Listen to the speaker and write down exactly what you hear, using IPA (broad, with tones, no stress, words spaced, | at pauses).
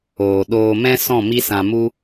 oː˨ɗoː˧mɛ̃˦sɔ̃˦˨ mi˦sã˧mu˦